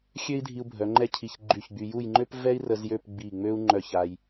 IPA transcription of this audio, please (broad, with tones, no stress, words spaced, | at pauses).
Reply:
xʲø˥i̯dʱi˧u̯bʱœ˩˧ ŋ͡ǃɛ˥˧cʰi˧˩ç ɡ͡ǃy˧˩çɡ͡by˧ju˥˧j ŋ͡ǃø˥p vɛ˥i̯rə˧z jø˥˧pɡ͡bi˧˩ŋ͡mø˥u̯ ŋ͡ǃœ˧˩ç a˧j